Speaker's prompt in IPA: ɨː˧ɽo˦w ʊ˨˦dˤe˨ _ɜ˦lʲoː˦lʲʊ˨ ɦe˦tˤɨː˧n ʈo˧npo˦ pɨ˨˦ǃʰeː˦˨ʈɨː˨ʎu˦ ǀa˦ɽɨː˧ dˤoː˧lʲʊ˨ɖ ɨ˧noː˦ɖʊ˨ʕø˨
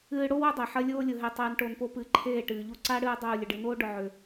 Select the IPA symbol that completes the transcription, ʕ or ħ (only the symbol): ħ